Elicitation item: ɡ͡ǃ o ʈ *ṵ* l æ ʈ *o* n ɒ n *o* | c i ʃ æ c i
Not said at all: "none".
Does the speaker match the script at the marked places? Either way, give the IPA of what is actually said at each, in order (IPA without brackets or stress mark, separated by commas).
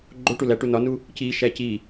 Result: u, u, u